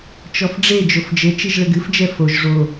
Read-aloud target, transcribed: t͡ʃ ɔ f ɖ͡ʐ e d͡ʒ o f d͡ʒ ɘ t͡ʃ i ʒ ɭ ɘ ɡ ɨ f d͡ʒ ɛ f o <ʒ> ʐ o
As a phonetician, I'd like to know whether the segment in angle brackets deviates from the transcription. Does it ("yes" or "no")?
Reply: no